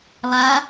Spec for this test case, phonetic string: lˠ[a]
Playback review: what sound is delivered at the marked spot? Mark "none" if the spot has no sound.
a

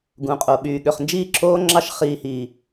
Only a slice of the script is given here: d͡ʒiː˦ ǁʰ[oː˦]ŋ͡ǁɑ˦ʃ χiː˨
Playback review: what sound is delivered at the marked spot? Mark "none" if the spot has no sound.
oː˦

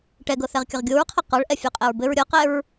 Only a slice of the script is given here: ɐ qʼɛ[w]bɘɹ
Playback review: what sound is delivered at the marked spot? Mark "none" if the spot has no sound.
ɹ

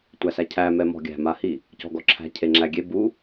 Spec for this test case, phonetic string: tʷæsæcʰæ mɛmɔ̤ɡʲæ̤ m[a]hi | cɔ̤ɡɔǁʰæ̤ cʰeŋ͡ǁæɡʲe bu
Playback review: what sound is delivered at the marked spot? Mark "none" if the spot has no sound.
a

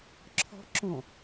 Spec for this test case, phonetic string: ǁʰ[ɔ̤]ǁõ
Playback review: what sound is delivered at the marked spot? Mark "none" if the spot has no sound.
ɔ̤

